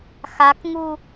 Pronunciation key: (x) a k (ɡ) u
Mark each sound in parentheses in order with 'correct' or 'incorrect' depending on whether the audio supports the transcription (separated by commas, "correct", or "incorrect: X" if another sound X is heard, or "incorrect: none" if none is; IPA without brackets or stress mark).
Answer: correct, incorrect: ŋ